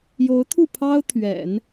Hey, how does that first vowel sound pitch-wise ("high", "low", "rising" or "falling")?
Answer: rising